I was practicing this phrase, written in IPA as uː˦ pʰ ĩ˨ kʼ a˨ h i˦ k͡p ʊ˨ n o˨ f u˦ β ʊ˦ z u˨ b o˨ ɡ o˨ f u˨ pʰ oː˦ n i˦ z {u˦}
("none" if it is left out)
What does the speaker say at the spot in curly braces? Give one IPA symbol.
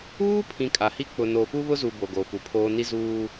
uː˦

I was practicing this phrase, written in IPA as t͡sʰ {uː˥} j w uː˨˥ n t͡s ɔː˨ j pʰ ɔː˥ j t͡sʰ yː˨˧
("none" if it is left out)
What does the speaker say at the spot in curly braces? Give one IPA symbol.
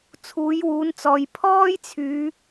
uː˨˥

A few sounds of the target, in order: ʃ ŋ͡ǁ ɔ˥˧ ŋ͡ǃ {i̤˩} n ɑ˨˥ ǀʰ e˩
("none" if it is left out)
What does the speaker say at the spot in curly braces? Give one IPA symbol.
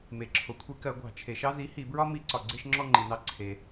i˩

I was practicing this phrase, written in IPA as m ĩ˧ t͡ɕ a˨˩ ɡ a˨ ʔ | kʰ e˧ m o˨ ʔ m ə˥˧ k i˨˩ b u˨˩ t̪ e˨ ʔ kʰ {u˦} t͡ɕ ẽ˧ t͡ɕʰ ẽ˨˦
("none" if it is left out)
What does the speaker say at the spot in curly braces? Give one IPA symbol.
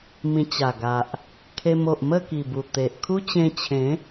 u˦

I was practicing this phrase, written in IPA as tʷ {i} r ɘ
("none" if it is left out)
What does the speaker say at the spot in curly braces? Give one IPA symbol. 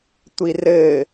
i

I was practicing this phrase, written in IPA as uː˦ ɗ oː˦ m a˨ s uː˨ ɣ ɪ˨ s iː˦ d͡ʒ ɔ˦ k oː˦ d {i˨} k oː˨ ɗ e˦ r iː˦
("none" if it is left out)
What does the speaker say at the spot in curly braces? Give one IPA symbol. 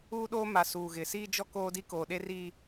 i˦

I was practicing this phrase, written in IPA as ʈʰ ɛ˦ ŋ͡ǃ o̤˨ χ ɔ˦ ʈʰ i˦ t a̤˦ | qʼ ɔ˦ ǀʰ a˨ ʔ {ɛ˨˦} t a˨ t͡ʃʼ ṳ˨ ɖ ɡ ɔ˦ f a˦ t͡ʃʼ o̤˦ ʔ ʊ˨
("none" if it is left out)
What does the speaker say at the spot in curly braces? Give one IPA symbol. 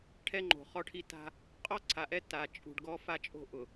ɛ˦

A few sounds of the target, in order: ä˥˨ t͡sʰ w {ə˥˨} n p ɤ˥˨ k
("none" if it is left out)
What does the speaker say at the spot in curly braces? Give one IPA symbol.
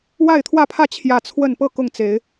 ə˥˨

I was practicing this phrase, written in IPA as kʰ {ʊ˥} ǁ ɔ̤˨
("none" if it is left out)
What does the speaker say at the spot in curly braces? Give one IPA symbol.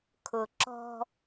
ʊ˩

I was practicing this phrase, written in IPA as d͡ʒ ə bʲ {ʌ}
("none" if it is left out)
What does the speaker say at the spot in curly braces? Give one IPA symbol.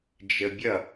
ʌ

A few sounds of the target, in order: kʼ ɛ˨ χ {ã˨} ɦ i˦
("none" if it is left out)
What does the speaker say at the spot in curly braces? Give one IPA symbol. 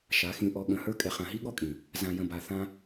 ã˨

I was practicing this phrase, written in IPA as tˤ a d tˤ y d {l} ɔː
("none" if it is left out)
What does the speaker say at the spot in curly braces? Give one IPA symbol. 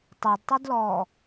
l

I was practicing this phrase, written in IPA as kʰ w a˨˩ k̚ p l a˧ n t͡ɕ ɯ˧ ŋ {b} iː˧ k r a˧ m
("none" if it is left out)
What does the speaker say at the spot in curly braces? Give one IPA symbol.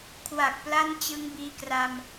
b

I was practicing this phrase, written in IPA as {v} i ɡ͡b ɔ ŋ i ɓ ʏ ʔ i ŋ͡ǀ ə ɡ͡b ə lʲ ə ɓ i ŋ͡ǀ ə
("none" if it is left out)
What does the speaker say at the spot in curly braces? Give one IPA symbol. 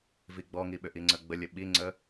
v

